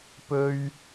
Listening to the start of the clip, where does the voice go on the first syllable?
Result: high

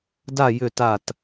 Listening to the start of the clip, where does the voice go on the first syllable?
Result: falling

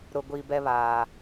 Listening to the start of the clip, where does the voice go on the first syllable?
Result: low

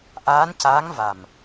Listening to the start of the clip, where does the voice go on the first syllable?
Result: rising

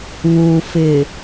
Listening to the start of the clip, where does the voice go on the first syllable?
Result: low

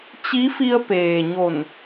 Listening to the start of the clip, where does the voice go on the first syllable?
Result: rising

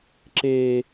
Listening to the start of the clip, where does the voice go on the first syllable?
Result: low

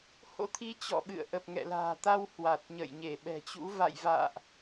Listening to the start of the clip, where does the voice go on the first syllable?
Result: rising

